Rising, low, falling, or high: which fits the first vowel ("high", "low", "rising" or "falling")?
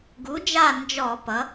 rising